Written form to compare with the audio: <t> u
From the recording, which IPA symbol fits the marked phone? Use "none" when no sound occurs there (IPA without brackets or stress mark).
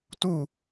t